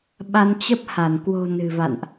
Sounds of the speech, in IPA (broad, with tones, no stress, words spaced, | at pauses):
ɓa˧nt͡ɕə˦˥p̚ha˧˩n kwo̤˨˩ nɨ̤˨˩va̰˧˨nʔ